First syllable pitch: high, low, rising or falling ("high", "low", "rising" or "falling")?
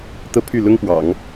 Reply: falling